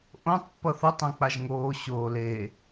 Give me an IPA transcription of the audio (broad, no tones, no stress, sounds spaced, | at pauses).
ʔ õ tˤ pː ʌ θ ʌ tˤ õ k͡p a ʒ ŋ oː ɕ oː l e